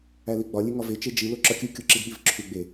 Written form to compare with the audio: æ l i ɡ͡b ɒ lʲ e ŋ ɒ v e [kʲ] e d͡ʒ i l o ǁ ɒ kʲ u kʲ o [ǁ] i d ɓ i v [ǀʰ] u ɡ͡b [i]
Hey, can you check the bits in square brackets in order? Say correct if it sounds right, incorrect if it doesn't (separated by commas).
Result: incorrect, correct, incorrect, incorrect